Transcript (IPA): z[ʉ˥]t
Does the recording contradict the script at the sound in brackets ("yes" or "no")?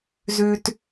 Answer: no